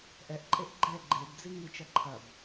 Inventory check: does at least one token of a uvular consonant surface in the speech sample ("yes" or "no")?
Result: no